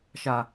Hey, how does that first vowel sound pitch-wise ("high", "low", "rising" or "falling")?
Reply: low